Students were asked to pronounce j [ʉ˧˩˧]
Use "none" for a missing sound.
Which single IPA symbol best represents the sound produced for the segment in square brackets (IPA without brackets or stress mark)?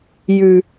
ʉ˩